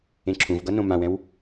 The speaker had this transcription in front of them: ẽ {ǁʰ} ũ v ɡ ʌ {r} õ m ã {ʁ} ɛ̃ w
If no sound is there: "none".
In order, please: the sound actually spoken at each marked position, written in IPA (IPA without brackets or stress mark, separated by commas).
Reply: ǁʰ, n, w